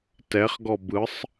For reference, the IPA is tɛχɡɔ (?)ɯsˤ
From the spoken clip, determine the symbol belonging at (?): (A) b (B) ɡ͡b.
A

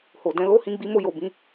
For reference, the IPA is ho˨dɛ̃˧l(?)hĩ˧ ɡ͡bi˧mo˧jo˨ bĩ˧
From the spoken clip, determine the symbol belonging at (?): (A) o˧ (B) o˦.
B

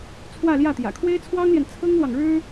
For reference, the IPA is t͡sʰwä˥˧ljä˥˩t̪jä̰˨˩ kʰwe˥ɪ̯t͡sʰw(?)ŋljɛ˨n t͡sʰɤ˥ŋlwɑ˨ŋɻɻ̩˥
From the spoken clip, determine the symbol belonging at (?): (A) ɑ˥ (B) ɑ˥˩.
A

